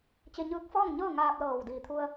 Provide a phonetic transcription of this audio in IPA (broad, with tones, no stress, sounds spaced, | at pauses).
t͡ɕ e˧ ɲ ɯː˧˥ k̚ f ɔː˥˨ ŋ ɲ ɤː˥˨ ŋ aː˧ p̚ l ɤː˧˩ w d iː˧˩ t̪ʰ u˧ ə̯